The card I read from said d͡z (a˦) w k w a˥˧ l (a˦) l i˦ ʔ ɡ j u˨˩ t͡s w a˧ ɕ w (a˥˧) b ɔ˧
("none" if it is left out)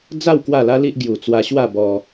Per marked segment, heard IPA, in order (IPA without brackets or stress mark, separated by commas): a˥˧, a˦, a˥˧